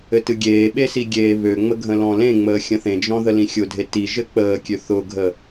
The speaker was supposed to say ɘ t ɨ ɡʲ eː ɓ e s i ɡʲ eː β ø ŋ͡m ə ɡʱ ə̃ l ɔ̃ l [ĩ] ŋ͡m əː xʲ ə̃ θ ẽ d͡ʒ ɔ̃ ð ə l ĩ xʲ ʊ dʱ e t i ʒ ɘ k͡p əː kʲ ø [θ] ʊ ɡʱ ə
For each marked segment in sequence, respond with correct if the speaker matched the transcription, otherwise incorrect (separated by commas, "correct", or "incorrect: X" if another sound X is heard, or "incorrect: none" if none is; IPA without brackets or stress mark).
incorrect: ẽ, correct